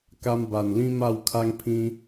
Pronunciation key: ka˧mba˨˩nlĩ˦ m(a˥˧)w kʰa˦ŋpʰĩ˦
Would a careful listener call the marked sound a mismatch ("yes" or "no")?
no